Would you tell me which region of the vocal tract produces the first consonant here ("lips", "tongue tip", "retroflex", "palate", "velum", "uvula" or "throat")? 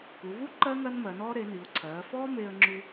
velum